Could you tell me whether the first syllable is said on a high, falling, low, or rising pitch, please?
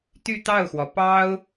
falling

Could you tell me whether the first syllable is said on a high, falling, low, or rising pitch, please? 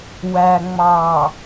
low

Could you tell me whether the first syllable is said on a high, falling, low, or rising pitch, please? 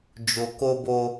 low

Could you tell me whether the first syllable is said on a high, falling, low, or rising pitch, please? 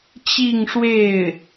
falling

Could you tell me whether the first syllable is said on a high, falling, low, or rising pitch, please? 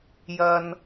high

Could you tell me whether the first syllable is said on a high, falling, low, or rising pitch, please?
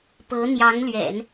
rising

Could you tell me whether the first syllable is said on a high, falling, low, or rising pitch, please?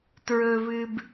low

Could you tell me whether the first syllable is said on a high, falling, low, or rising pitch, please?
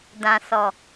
low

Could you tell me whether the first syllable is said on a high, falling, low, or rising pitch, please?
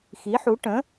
rising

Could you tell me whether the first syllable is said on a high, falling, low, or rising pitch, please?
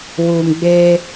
low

